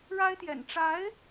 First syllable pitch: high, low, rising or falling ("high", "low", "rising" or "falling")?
high